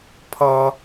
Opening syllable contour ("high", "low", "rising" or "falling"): high